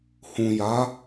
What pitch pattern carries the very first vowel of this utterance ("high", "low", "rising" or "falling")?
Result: low